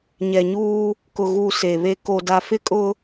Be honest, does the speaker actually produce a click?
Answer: no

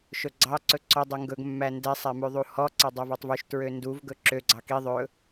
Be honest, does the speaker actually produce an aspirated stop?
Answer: no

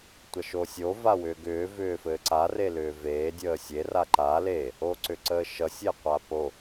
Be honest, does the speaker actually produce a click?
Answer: yes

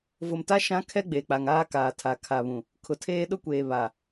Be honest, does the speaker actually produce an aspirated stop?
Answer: yes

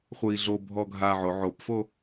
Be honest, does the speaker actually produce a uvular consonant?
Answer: yes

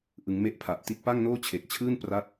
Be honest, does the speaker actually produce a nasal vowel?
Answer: no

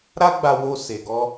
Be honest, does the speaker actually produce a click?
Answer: no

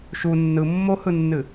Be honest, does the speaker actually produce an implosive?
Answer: no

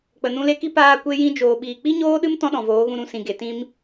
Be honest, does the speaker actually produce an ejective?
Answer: no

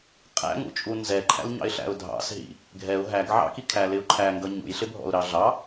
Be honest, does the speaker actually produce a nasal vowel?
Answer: no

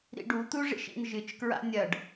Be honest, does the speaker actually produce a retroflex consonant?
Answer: yes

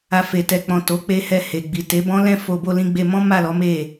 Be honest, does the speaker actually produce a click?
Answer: no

